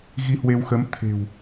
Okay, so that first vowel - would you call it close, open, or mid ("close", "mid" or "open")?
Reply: close